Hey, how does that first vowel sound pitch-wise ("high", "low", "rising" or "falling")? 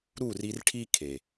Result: falling